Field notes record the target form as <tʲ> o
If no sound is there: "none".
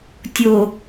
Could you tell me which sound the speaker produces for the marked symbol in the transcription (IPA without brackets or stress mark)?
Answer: tʲ